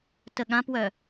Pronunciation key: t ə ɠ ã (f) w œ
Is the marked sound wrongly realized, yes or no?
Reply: yes